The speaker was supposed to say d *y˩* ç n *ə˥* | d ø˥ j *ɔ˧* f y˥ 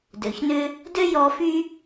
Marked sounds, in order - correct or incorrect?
incorrect, incorrect, correct

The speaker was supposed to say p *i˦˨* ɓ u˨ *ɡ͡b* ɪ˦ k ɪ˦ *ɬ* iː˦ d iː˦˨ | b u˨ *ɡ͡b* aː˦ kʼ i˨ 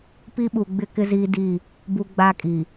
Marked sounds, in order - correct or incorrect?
incorrect, correct, incorrect, correct

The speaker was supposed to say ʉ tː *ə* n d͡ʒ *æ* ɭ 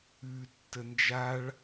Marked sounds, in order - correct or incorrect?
correct, incorrect

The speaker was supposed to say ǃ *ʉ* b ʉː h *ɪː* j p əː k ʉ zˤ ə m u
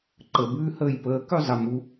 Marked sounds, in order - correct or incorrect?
incorrect, incorrect

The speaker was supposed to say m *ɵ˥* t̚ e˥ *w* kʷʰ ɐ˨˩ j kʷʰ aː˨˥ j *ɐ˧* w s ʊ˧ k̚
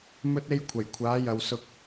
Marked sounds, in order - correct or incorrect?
correct, incorrect, incorrect

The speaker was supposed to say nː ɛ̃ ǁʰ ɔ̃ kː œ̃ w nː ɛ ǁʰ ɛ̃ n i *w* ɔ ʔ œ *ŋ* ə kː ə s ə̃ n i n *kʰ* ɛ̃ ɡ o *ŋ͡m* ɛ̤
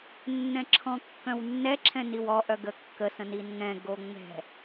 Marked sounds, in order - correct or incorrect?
correct, incorrect, incorrect, correct

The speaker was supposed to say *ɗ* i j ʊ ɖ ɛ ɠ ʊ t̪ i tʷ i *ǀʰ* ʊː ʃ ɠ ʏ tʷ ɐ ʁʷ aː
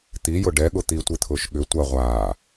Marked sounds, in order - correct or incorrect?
incorrect, incorrect

